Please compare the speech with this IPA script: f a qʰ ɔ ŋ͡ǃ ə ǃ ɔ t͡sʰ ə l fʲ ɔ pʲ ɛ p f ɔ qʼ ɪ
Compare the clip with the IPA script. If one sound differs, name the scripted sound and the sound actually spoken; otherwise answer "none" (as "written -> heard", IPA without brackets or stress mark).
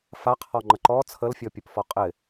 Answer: ɛ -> ə